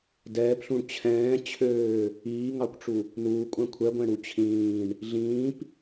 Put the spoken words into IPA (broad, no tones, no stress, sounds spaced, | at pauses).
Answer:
d ɛː p ɬ ũ ɳ t͡ɕʰ ɛ̃ː t͡ɕʰ øː | iː ŋ ɑ kʷ ʈ͡ʂ u | n uː kʷʼ æ̃ kʷʰ ɛ ɡʷ ɛ̃ ɽ u t͡ɕʰ ĩː ɳ | ɮ ĩː p